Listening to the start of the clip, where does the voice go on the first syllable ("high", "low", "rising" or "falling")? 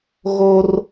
high